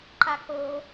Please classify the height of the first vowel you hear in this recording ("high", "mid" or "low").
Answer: low